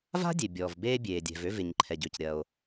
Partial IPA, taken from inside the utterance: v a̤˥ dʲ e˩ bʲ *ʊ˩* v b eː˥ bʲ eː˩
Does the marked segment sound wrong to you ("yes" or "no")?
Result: yes